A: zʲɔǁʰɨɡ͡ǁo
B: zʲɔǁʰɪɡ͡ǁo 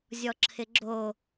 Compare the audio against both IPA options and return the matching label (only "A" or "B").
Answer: B